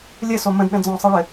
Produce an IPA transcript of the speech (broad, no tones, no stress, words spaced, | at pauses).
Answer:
lʲɘ somə̃dɗə̃ d͡zɔ̃sˤɤɭɘ